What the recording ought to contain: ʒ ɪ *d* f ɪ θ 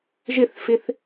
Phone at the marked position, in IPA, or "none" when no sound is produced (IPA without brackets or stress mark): θ